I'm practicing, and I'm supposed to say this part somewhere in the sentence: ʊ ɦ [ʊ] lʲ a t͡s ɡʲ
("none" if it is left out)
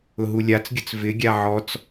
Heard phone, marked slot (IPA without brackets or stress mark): u